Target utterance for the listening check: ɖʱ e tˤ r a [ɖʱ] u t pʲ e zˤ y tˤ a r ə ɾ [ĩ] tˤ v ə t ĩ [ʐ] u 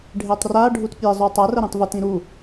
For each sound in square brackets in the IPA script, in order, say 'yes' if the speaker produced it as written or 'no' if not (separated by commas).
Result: yes, yes, no